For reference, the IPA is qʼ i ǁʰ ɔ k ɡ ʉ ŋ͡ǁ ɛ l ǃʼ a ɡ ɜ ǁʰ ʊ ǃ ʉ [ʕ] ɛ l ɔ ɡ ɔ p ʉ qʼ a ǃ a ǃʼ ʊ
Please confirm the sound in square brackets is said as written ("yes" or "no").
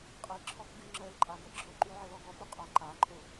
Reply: yes